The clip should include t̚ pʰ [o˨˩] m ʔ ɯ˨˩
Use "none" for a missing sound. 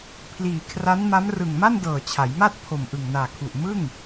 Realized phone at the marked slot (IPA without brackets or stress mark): o˨˩